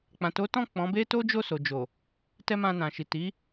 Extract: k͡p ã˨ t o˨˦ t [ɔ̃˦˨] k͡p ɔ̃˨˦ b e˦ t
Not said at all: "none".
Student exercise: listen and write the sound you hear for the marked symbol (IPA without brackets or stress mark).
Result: ɔ̃˦˨